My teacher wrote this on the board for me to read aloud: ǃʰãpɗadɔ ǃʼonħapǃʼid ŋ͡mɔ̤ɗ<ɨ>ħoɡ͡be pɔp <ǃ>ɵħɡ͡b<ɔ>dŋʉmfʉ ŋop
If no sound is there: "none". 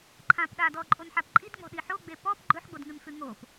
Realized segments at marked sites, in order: i, ɡ͡ǃ, o

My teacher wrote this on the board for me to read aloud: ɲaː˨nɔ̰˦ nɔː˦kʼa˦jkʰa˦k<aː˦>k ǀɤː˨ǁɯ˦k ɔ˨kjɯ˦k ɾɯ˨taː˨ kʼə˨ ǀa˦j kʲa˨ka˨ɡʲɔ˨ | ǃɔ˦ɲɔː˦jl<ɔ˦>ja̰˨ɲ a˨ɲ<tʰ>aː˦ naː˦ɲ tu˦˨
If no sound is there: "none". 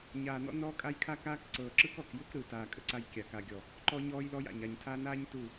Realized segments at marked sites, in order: aː˦, ɔ˦, tʰ

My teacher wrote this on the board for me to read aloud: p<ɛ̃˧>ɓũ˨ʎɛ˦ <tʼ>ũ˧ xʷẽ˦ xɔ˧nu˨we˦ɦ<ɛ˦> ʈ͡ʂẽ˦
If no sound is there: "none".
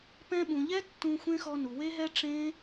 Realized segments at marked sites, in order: ɛ̃˧, tː, ɛ˦

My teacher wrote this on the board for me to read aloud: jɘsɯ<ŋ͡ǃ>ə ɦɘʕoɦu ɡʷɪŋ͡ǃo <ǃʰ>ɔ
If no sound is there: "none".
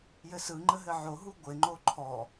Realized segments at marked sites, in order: ŋ͡ǃ, ǃʰ

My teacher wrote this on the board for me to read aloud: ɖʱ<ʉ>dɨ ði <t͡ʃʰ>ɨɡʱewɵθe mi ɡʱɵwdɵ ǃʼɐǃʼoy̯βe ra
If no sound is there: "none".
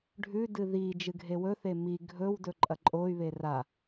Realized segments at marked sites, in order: ʉ, d͡ʒ

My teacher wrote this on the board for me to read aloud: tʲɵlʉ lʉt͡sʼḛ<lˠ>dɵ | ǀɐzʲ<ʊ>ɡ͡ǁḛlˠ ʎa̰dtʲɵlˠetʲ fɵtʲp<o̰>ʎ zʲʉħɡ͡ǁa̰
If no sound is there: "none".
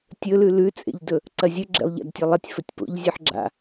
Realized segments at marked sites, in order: ʎ, ɵ, o̰

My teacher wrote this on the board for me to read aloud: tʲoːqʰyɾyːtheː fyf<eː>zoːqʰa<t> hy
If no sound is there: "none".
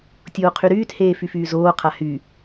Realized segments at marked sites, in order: yː, none

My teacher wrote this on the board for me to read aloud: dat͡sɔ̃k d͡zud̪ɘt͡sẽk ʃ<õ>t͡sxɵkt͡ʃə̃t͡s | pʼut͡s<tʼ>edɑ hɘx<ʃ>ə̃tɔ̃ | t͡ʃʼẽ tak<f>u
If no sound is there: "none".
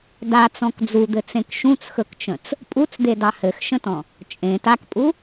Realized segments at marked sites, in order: ũ, d̪, ʃ, pʼ

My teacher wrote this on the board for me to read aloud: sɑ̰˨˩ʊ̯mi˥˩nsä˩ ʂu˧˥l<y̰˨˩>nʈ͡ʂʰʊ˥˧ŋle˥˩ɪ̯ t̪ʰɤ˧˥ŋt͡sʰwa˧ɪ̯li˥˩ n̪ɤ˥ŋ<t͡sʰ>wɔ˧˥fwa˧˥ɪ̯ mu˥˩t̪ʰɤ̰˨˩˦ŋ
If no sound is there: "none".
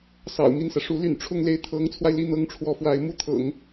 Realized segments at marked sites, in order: y̰˨˩, ʈ͡ʂʰ

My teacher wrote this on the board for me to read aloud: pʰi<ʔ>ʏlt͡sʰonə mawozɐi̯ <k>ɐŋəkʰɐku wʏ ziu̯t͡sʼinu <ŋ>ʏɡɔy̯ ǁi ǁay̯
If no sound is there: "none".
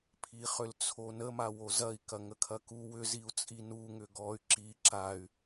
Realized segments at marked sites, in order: χ, k, ŋ

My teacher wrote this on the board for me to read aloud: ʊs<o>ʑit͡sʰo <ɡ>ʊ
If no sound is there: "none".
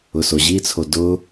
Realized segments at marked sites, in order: o, d

